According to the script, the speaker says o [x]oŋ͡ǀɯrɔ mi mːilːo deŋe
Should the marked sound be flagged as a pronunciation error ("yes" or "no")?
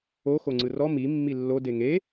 no